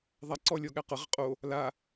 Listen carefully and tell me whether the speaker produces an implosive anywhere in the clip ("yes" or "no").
yes